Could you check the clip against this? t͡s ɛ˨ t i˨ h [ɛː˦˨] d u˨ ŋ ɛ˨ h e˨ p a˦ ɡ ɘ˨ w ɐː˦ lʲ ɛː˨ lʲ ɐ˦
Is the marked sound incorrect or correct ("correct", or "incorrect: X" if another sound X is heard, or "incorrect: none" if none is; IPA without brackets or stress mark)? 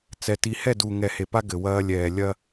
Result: incorrect: ɛ˦˨